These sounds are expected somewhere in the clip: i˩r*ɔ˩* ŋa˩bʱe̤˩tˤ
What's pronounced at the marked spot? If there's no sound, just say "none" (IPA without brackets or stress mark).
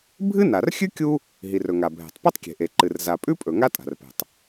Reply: ɵ˩